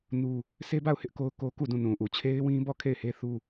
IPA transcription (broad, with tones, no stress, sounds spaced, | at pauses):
n u˦ | sʰ e˦ b a˦˨ ʊ̯ h ɪ˦ ʔ k o˦ ʊ̯ k o˦ k u˦˨ d ũ˦˨ n ũ˨ ʔ u˨ t͡ɕʰ e˦ ɪ̯ w ĩ˦ b ɔ˦˨ kʰ e˦˨ ɪ̯ h e˦ θ u˦